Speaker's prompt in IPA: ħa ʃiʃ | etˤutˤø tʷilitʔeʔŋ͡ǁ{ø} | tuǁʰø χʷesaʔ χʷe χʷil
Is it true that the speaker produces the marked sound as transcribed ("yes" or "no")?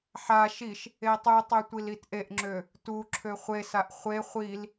yes